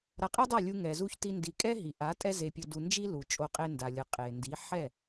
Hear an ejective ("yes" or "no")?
yes